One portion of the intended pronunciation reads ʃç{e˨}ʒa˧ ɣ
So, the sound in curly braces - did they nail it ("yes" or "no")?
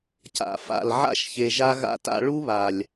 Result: yes